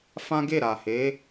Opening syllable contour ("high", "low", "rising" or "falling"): high